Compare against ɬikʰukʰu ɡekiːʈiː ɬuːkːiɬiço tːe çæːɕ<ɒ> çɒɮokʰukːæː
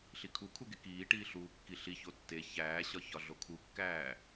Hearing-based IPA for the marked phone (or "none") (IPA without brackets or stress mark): ɒ